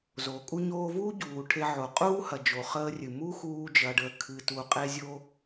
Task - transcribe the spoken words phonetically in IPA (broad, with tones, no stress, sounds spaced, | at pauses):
z o˩ kʼ u˥ ɲ oː˧ v uː˥ ɟ uː˩ ʈʰ e˧ ʕ o˩ qʼ uː˥ h ɐ˩ d͡ʒ o˩ χ əː˧ rʲ ɨ˩ m u˥ x uː˥ d͡ʒ ɐ˧ ɖ əː˧ kʰ ɨ˩ t u˩ qʼ e˥ zʲ o˥